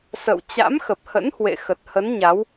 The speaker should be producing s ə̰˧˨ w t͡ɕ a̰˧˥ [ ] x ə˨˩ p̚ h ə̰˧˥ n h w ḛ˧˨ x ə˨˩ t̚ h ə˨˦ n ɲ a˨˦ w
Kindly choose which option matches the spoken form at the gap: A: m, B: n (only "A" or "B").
A